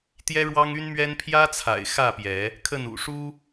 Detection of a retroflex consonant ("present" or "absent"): present